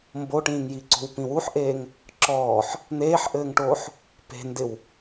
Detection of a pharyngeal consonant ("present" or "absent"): present